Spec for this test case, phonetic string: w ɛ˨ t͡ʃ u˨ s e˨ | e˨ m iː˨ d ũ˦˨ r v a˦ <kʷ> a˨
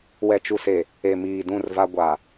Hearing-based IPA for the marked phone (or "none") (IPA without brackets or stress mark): ɡʷ